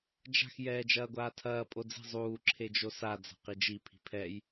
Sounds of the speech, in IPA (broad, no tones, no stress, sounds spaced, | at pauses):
d͡ʒ a̤ x j ɛː d͡ʒ ɐː ɡʷ aː tʰ ɐː pʼ o d͡z i̤ zˤ uː ǁʰ e d͡ʒ o s a d͡z a̤ q i d͡ʒ i pʰ i̤ pʰ ɛ j